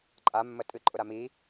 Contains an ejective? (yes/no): yes